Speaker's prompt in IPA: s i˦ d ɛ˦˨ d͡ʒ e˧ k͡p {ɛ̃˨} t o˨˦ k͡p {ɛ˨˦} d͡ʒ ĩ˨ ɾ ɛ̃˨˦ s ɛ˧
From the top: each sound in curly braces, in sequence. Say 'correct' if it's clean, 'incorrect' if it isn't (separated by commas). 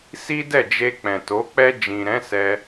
correct, incorrect